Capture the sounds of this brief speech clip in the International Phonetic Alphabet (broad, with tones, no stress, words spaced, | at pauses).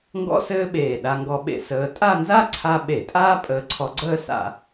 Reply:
ŋɡɔ̰˥sɘː˥ɓeː˧˩ ɗa˧ŋɡɔ˧ɓḛ˧ səː˧ tʼa˥˧nza˥ ǀʰa˥ ɓe˧˩˧ tʼaː˥pʼəː˧ǀʰɔ˧ɡ͡ǀəː˥˧ sa̰˧˩˧